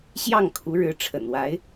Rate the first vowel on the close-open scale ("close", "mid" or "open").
open